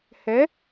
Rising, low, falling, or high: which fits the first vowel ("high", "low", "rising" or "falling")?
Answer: rising